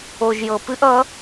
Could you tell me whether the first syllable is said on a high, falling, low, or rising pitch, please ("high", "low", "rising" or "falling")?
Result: low